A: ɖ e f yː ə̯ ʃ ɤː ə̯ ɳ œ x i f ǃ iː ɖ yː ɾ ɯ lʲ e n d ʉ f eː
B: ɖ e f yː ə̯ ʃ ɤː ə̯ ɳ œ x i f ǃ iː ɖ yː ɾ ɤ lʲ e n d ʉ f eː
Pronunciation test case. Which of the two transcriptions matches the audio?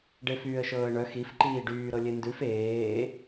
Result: B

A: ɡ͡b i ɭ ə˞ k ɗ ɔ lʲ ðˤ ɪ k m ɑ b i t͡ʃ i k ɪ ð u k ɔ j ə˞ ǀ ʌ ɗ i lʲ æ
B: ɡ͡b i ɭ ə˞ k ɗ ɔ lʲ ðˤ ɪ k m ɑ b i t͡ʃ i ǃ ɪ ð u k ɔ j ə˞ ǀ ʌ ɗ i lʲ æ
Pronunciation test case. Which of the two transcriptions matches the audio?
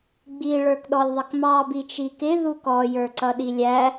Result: A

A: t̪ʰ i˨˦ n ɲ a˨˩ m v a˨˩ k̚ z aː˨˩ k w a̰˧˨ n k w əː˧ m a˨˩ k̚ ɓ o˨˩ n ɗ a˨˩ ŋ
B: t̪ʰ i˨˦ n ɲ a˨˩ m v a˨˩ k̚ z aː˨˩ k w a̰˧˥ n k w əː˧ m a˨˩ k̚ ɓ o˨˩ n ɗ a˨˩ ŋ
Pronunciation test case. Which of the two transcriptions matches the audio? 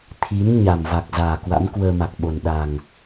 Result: B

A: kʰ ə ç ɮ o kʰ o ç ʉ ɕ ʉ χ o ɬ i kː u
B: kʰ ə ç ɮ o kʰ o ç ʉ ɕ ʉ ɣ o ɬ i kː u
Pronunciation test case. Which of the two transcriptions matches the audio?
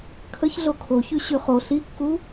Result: A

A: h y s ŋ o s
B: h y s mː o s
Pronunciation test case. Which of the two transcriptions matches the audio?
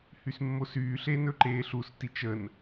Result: B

